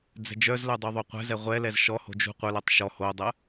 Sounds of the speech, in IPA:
d͡z ɛ̤ d͡ʒ œ z l œ dˤ u ðˤ o qʷ ɛ̤ z ɛ ʁʷ ɛ l ɛ z ʃ ɔ h o̤ d͡ʒ ṳ qʷ œ l ɜ tˤ ʃ ɔ h o dˤ ɜ

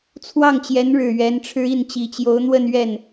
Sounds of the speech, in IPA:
t͡sʰ w ɑ˥˩ ŋ t͡ɕ j ɛ˧˥ n ɻ ɻ̩˨˩ ɥ ɛ˧˥ n ʈ͡ʂʰ ɻ̩˥ i˥˩ n t͡ɕ i˨˩ t͡ɕ j o˧˥ ʊ̯ n̪ w ə˥˧ n ɥ ɛ˥˩ n

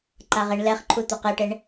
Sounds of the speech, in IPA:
ǃ a ʁ e ɳ l ɛ χ ǃʰ u t̪ o q e ʈ e ɳ

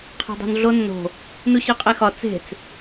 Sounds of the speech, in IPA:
qʰ æ̤ dˤ o̤ n ɮ o nː o̤ | n u ɕ e qʼ e x ɒ t͡s e̤ t͡s

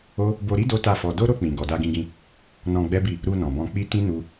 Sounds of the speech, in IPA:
o˦ | b o˧ ɾ i˦ d o˦ t a˦˨ f ɔ˧ d o˦ ɾ o˧ k͡p ĩ˨ ɡ ɔ˨ d a˧ ɡ ĩ˧ ɡ ĩ˧ | n ɔ̃˧ ɡ͡b ɛ˦ b i˦˨ | ɾ u˧ n ɔ̃˨ b ɔ̃˧ k͡p i˦ t ĩ˦ n u˧

